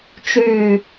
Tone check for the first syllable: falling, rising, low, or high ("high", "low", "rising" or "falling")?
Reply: falling